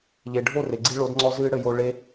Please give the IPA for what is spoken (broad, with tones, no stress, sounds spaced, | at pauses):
ʎ e˨ ɖʱ o˦˨ r e˨ ɡ͡ǀ i˧ ɭ o˨˦ d ŋ͡ǀ ɔ˧ z ɨː˦ ɽ ɘ˧ j o˧ ɭ e˧